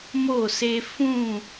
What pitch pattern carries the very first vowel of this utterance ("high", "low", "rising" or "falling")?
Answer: falling